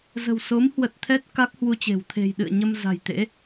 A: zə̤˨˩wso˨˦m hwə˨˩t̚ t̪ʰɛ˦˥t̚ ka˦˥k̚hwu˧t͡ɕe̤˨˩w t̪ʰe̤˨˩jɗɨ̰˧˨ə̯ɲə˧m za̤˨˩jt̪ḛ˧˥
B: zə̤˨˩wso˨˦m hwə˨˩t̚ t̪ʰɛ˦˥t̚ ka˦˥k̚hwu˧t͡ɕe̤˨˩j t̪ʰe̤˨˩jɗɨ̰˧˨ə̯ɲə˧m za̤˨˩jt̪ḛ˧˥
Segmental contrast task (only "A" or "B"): A